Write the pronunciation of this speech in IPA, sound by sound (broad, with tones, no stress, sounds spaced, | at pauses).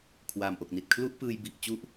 kʰ w a˨˩ m ʔ o˨˩ k̚ n i˨˩ t̚ kʰ l u˦˥ ʔ p ɯː˧ j b i˨˩ ʔ t͡ɕ u˦˥ ʔ